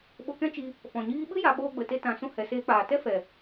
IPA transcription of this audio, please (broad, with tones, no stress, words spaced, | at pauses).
ɓo˧kɛ̃˦t͡ʃi˧ | fɔ̃˨ɲiː˦ ɓɨ˦ ja˧ɓoː˧ɡ͡bə˨te˧ tã˧ sũ˧hɛ˨seː˧k͡paː˨ tɛ˦fɛ˨